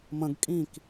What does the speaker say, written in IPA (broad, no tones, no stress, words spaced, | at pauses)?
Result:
mə̃ɡ kʼĩk